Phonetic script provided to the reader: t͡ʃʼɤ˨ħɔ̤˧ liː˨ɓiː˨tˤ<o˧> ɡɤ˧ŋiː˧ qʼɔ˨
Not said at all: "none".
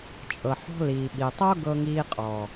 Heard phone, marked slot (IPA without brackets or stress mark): o˦